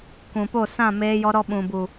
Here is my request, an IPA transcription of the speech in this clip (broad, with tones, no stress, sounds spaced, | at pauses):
k ũ˨ p o˦˨ s ã˦˨ m eː˧ j ɔ˧ ɾ ɔ˧ ɓ ũ˨ b u˨